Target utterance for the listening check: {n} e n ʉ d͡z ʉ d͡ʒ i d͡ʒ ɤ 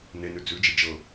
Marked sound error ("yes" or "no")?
no